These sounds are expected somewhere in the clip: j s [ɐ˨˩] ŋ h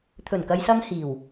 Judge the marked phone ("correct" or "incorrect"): incorrect